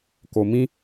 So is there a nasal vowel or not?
yes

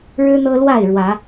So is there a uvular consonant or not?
no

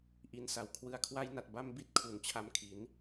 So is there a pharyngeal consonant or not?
no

